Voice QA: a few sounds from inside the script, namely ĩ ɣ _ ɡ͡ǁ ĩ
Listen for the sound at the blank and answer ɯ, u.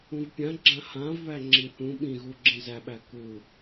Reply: u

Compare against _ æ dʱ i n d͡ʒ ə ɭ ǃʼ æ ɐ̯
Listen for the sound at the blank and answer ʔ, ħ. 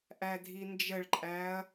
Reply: ʔ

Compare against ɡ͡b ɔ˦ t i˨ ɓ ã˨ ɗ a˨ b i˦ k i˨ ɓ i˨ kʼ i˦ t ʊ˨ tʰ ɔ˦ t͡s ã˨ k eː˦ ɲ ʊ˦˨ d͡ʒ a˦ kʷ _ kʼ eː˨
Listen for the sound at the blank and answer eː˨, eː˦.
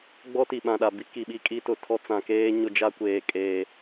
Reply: eː˨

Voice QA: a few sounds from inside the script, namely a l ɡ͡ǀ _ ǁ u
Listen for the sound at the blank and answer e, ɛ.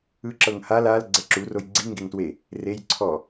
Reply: ɛ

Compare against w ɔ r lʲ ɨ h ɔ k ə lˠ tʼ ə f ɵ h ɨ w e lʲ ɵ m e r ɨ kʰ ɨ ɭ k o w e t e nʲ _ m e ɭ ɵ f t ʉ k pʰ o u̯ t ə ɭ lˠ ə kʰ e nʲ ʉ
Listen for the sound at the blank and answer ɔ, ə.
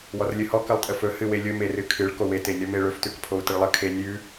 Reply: ɔ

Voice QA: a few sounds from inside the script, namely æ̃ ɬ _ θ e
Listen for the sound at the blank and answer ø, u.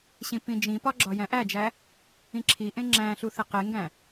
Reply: u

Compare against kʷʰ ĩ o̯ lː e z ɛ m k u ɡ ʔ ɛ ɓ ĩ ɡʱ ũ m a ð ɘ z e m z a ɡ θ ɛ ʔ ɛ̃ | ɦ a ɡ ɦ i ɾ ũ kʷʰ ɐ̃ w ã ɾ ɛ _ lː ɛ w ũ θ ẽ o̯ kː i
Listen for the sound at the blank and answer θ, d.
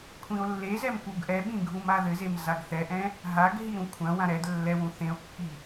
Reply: d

